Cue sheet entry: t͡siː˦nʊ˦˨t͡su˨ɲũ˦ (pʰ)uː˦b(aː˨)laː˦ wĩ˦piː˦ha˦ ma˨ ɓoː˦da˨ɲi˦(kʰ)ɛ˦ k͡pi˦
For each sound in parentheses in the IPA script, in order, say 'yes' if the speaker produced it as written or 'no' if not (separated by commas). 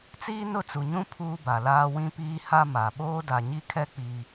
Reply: yes, no, yes